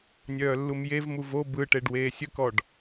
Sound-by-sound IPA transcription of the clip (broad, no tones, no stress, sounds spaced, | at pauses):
nʲ œː lː u m j e v m u v o b ɯ ʈ e ɖ w eː sʲ ə k ɔ ɖ